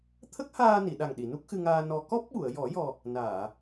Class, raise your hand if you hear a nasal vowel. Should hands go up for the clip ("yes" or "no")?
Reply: no